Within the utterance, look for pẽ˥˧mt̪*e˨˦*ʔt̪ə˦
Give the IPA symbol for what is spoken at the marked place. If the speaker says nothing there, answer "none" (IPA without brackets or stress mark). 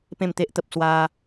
e˦